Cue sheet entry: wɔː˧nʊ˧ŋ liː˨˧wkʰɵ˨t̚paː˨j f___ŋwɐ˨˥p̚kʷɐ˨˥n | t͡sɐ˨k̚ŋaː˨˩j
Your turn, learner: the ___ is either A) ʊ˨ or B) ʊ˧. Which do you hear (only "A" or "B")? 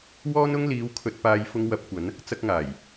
B